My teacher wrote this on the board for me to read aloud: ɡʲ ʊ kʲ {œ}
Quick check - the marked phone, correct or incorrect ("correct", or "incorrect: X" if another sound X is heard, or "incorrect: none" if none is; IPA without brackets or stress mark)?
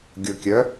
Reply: correct